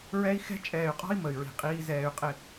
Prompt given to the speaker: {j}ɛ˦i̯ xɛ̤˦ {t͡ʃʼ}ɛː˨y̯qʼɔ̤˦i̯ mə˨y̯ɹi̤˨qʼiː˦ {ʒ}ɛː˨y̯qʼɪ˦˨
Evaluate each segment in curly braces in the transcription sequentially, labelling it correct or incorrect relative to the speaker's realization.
incorrect: ɹ, correct, incorrect: z

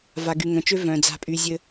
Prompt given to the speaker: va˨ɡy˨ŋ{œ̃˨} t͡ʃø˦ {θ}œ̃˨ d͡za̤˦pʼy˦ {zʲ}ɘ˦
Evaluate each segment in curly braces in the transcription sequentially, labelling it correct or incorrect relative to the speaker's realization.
correct, incorrect: v, correct

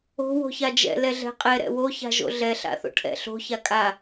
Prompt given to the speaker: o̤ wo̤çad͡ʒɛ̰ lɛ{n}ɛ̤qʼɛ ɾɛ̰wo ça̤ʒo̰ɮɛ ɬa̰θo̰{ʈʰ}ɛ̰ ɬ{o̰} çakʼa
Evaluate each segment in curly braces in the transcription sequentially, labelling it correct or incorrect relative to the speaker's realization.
incorrect: ɮ, correct, incorrect: o̤

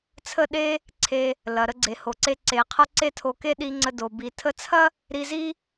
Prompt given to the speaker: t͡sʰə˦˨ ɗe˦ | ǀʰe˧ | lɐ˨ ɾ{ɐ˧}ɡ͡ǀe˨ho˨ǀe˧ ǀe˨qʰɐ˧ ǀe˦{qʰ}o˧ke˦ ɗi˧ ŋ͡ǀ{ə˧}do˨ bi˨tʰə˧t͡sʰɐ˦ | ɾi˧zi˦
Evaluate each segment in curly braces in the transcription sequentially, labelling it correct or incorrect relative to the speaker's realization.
incorrect: ə˧, incorrect: tʰ, correct

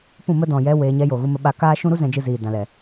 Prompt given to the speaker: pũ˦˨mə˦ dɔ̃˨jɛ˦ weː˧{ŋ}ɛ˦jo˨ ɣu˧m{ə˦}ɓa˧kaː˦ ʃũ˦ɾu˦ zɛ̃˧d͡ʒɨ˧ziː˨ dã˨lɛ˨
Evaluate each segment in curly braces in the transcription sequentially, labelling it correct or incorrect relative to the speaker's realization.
incorrect: ɲ, incorrect: ə˧

